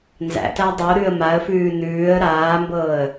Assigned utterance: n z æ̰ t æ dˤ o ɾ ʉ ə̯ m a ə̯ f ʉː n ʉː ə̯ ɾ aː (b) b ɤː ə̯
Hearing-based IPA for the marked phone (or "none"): m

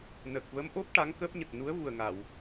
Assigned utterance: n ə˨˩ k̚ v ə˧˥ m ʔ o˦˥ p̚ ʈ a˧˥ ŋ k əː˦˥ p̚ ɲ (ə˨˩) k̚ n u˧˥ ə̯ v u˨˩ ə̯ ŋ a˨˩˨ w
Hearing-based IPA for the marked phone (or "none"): ə˨˩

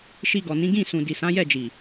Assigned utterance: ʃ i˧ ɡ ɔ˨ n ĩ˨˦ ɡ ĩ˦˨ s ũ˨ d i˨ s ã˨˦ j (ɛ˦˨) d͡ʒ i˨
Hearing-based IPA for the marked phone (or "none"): ɛ˦˨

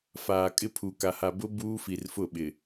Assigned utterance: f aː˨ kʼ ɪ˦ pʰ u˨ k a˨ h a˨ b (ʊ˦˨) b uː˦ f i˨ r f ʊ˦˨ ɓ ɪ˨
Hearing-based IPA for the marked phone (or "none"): ʊ˦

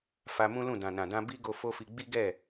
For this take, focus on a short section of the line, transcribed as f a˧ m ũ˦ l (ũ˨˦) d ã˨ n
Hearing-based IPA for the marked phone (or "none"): ũ˦˨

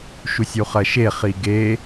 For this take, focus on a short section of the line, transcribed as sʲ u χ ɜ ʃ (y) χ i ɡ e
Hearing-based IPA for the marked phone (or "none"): e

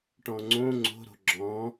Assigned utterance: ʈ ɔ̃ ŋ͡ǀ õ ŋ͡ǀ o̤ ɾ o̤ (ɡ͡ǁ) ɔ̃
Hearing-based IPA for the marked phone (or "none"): ɡ͡ǁ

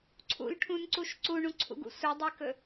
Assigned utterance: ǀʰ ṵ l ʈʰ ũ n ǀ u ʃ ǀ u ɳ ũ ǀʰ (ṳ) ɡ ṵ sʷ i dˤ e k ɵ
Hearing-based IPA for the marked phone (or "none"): ṵ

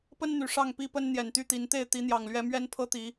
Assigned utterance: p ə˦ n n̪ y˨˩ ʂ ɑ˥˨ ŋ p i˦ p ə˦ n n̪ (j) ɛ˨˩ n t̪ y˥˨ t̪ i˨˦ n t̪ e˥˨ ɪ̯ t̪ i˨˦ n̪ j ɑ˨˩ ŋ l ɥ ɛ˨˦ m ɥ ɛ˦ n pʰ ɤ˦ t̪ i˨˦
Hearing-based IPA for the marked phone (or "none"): j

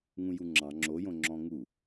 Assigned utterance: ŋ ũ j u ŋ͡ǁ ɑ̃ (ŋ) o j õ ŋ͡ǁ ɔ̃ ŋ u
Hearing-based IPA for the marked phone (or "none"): ŋ͡ǁ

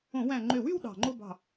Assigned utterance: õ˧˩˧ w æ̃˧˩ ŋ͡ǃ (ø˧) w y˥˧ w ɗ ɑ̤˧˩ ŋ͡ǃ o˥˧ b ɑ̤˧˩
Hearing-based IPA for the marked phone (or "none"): ø˧˩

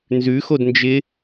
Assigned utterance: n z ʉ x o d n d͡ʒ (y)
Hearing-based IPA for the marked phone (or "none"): ɪ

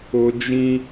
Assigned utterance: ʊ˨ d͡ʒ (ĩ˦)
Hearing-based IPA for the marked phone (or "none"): ĩ˦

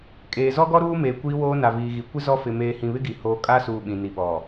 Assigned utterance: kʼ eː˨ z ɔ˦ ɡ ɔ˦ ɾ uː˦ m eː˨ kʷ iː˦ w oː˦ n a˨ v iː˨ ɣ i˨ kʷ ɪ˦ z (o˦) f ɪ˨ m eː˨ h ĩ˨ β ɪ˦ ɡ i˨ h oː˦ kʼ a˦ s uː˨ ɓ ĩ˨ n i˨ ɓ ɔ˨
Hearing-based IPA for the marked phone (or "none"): ɔ˦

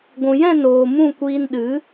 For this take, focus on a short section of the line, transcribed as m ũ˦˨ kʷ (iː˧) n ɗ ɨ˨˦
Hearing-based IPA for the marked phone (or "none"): iː˧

